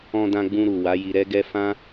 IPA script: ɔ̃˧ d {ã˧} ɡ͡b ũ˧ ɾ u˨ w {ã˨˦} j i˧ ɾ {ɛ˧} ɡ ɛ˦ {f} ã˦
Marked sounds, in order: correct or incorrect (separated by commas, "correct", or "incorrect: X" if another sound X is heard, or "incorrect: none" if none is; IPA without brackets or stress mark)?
correct, incorrect: a˨˦, incorrect: ɛ˦, correct